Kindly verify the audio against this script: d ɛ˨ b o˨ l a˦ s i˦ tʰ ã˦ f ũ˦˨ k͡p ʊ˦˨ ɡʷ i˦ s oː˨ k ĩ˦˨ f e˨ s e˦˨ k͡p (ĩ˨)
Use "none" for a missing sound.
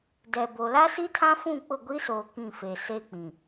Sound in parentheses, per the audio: ĩ˨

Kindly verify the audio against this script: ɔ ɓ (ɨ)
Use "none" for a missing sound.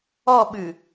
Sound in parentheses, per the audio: ɨ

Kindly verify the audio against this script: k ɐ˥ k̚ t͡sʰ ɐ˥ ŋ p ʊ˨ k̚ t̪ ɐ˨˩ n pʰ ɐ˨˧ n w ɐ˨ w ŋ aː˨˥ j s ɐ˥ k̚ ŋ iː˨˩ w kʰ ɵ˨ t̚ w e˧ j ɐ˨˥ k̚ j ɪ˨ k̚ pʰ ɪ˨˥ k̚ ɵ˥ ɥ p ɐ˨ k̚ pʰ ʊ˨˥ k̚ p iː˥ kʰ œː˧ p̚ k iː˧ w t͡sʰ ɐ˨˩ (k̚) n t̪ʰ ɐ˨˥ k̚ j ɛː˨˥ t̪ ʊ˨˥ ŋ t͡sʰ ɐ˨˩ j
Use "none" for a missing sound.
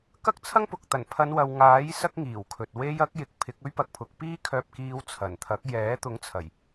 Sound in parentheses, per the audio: none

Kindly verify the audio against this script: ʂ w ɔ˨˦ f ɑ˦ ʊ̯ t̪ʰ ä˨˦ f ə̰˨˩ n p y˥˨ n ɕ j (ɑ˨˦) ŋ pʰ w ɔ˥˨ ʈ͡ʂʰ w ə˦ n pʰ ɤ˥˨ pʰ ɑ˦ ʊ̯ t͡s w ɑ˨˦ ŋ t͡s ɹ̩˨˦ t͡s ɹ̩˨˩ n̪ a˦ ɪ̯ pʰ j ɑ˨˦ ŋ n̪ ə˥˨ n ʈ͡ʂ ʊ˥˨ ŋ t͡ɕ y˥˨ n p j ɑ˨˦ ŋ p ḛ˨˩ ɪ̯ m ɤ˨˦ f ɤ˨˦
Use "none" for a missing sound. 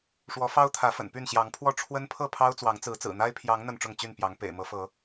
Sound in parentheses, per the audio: ɑ˨˦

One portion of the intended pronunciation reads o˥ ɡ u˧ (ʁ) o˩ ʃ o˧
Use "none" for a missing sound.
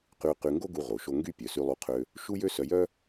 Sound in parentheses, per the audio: ʁ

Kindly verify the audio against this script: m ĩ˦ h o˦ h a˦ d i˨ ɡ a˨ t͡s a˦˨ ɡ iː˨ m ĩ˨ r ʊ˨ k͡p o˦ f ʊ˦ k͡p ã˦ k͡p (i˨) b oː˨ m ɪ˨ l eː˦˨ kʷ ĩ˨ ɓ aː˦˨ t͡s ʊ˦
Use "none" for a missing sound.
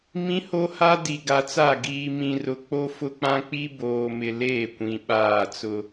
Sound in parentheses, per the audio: i˦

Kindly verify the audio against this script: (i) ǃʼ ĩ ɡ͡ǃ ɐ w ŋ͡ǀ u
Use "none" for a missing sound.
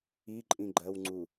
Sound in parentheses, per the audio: i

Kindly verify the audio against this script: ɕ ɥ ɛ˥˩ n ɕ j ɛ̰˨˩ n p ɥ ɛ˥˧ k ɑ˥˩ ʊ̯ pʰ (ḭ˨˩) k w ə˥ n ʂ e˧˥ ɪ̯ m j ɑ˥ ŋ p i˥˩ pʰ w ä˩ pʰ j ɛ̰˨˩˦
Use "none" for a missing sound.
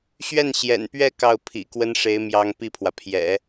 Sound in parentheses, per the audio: ḭ˨˩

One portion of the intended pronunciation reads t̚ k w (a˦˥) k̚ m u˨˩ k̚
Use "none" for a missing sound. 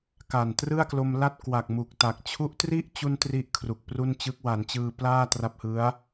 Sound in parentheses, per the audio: a˨˩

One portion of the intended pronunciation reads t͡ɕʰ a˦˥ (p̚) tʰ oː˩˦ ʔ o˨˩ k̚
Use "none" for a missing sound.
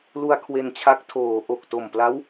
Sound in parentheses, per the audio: k̚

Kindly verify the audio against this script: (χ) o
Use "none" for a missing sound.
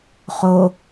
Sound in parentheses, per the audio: χ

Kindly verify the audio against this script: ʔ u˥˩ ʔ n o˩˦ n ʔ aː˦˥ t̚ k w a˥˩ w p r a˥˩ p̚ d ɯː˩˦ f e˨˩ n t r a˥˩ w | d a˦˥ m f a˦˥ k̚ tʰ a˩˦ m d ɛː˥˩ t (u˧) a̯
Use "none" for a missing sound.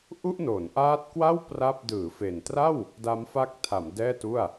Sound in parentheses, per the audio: u˥˩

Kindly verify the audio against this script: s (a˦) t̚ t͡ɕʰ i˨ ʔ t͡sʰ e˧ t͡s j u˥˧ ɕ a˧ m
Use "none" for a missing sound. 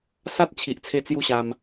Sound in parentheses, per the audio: a˦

